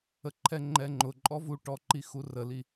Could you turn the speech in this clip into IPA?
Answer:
ə ǃʰ ɛ ŋ͡ǃ ɛ ŋ͡ǃ ʊ ǃʼ ɔ v u ʈ ɔ ǃ i x u r ə l i

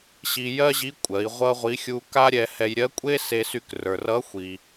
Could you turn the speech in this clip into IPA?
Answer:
ɕ i˧ j ɜ˥ ʑ i˧˥ kʷʼ ɜ˩˧ i̯ ʁʷ ʌ˥ ʁʷ i˧˥ xʲ u˧ k a˥ ɾʲ ɛ˧ h ɛ˧ j ɾʲ ɜ˧˥ kʷʼ e˥ s e˧ s y˧ k r ə˞˩ r ʌ˧˥ xʷ i˩

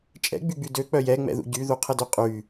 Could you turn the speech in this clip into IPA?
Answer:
t͡ʃʼ ɛ̰ ɡ͡b y ɡ͡b y d ø k͡p œ j ɛ ŋ͡m ɛ̰ ð ṵ ɟ y ð u qʰ ə d ø qʼ y

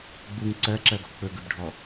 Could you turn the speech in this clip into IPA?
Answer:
ɡ͡b u ŋ ǀ ɜ ǁ ɜ ɡ ɔ k͡p ɵ ɡ ɵ b ɖʱ ɔ

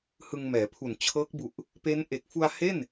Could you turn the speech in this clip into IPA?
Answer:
h ɯ˧ ŋ m ɛː˩˦ pʰ u˨˩ n t͡ɕʰ ɤː˦˥ k̚ b u˨˩ ʔ | p e˦˥ n ʔ e˨˩ k̚ f u˧ a̯ h e˥˩ n

